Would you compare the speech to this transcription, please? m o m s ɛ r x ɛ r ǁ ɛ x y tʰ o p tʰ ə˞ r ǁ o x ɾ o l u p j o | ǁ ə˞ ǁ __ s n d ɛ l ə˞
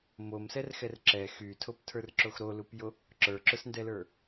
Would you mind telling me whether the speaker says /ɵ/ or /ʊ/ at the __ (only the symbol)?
ʊ